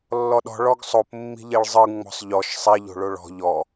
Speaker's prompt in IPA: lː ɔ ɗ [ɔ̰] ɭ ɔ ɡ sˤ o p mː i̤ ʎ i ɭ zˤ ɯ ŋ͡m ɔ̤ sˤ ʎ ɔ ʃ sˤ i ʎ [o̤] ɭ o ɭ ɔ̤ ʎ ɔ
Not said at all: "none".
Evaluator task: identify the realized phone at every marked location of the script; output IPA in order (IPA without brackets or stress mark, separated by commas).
ɔ̤, o̤